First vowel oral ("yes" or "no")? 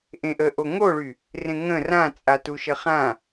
no